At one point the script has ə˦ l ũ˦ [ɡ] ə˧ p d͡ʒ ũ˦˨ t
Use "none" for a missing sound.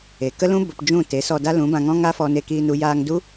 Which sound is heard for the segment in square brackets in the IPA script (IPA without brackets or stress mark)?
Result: b